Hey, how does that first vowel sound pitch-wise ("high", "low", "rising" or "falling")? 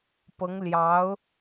rising